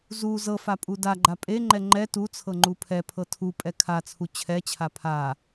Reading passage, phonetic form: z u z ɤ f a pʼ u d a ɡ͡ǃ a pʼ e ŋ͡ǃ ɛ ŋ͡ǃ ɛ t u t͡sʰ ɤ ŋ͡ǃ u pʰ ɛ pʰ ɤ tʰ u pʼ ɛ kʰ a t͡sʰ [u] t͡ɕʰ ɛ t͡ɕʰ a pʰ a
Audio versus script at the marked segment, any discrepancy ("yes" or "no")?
no